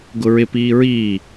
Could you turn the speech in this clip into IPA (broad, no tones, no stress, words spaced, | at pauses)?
ɡʊɹɪ piːɹiː